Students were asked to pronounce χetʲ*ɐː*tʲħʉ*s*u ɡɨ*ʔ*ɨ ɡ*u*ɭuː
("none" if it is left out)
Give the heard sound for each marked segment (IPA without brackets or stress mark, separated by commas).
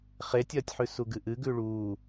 ɐː, s, ʔ, ʉ